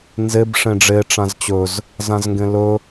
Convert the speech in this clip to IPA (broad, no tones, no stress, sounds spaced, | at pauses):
n z e b ʂ ẽ ɖ͡ʐ e ʈ͡ʂ ã z t͡ɕ ɵ z | z ã z ŋ ɡ ẽ l ɵ